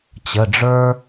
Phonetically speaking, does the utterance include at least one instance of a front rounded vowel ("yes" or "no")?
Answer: no